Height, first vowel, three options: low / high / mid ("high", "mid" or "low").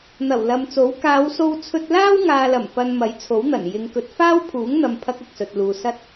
low